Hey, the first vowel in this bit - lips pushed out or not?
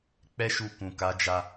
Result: no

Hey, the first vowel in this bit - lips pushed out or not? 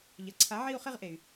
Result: no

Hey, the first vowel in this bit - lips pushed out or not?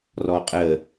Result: yes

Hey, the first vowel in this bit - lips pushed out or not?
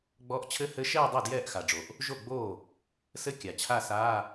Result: yes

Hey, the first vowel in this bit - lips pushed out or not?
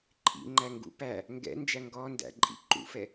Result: no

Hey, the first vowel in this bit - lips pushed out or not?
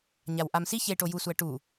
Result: no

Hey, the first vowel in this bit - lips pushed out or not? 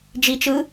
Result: no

